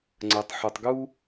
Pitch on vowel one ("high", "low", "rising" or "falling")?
low